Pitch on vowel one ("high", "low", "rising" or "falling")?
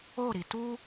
falling